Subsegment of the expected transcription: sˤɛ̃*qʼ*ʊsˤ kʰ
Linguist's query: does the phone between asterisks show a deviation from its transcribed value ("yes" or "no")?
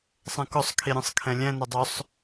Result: yes